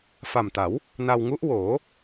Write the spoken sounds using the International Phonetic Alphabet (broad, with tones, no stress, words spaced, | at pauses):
fa˨˩mta˩˦w | na˧wŋu˦˥ʔwoː˩˦